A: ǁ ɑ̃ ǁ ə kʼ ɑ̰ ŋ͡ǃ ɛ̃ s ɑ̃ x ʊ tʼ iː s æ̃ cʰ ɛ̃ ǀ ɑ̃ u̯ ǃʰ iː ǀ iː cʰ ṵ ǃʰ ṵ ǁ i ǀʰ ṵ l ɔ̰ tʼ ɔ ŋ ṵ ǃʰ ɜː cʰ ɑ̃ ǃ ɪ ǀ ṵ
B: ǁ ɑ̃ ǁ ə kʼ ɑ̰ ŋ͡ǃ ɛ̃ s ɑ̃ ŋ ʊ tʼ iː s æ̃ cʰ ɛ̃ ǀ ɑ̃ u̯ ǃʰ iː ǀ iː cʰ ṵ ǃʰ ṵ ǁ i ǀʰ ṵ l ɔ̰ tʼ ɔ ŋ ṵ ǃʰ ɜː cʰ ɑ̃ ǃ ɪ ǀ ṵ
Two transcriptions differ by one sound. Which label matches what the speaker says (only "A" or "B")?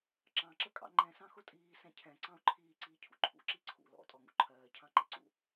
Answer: A